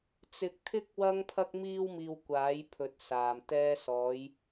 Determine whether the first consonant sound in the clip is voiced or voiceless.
voiceless